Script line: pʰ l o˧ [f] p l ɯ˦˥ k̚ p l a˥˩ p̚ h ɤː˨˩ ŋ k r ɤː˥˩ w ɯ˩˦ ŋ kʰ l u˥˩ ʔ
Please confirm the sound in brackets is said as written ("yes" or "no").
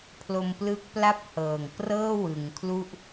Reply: no